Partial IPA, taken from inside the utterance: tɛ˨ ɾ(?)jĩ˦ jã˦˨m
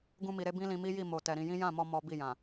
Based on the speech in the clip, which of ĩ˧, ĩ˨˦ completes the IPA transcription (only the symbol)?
ĩ˧